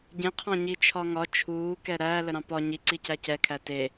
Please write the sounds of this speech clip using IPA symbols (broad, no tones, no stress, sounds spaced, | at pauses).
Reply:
ɟ ẽ qʰ ɑ̃ ɲ i t͡ʃʰ ɒ ŋ ɒ t͡ʃʰ uː k ɛ ɾ æ l ə ɾ ɑ̃ p ɒ ɲ i ǀ i c æ c ɛ kʰ æ t e